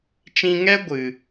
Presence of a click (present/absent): absent